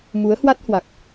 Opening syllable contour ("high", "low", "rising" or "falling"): rising